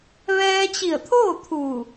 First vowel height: mid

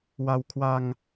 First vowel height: low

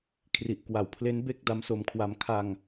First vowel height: high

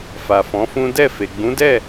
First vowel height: low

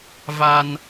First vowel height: low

